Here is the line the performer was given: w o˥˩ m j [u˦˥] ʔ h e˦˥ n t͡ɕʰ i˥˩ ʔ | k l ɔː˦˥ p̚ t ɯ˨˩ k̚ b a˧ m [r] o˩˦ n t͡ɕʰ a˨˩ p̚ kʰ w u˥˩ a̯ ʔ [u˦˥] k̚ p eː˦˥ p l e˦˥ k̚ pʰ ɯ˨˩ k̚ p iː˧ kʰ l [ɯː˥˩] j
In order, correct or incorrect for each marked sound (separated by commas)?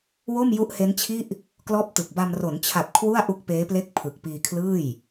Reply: correct, correct, correct, correct